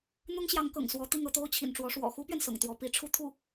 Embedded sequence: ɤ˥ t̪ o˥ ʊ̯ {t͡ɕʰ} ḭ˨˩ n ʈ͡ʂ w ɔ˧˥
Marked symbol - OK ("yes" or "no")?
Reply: yes